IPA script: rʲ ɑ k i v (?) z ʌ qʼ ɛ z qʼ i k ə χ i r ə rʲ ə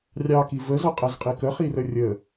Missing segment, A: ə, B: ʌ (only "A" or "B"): A